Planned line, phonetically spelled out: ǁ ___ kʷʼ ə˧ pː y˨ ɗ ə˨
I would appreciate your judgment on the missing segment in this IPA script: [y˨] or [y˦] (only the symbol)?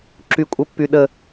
y˨